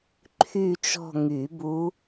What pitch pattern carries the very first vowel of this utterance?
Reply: falling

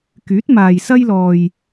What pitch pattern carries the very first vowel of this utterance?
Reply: rising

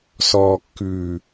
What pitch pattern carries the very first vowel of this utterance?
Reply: low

